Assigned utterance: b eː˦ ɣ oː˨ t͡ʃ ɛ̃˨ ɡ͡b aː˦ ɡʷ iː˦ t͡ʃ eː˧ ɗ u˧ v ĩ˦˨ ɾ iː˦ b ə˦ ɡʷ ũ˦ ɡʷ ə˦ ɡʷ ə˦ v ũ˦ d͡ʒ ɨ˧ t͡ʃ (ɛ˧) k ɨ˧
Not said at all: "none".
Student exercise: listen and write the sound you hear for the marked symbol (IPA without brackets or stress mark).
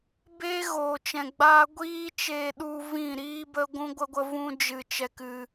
ɛ˧